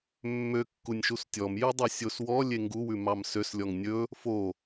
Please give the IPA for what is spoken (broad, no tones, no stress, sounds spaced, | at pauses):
mː ø kː u nʲ ʃ u s tʲ ɔ m j ʉ dˤ ɛ sʲ o s w ɔ lʲ e ŋ ɡ u w ʉ m ɑ m s ø s lʲ ɔ ŋ nʲ ɵ | f o